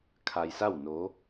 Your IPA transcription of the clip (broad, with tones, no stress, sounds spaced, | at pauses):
kʰ a˧ j s a˥˨ w n o˧˥